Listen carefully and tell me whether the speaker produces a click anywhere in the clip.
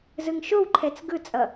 yes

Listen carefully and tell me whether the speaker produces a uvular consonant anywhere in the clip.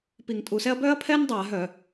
no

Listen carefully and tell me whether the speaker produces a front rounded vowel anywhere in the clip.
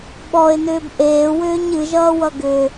yes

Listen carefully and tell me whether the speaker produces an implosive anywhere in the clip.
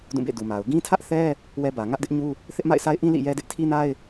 no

